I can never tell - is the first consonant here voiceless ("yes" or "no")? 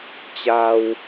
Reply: yes